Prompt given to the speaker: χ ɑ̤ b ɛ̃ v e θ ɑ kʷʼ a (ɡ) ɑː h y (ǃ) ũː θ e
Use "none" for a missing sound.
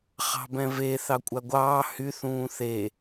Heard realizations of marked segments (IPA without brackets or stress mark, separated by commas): ɡʷ, θ